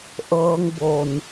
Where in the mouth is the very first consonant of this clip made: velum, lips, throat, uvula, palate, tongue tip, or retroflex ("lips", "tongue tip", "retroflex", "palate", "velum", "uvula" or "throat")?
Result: throat